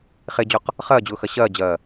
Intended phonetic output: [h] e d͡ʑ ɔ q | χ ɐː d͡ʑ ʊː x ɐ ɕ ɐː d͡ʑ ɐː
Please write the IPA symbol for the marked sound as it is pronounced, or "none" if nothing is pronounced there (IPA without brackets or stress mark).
χ